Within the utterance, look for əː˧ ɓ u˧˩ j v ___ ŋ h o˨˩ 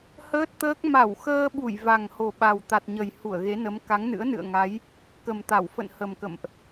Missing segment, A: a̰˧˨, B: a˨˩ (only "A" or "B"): B